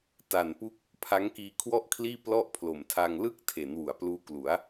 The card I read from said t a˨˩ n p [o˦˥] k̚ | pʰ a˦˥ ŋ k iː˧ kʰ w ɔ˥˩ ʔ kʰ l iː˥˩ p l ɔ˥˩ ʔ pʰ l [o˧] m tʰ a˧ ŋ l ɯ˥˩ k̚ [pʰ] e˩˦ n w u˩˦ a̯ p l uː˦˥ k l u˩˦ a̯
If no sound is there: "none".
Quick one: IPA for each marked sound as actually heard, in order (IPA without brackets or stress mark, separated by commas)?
u˦˥, o˨˩, tʰ